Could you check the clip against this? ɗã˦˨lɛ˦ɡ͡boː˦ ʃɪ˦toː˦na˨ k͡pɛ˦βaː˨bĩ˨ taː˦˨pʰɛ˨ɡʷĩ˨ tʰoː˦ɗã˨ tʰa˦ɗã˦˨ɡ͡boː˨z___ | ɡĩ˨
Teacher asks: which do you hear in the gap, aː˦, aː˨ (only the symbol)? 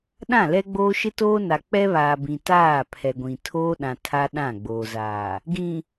aː˨